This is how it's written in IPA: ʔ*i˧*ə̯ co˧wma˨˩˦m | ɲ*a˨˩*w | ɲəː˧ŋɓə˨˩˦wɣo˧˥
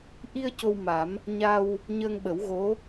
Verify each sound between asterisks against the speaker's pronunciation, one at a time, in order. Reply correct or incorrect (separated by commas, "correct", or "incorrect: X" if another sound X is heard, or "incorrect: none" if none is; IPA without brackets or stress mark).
correct, incorrect: a˧